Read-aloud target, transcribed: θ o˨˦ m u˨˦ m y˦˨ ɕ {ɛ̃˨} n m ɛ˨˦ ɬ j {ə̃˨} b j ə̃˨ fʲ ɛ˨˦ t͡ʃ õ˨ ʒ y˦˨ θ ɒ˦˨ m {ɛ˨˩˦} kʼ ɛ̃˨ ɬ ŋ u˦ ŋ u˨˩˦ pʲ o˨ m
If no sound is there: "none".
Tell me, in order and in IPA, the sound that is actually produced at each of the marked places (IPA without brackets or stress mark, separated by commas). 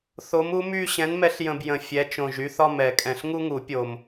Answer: ɛ̃˨˦, ə̃˨, ɛ˨˩˦